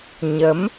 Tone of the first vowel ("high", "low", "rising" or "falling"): rising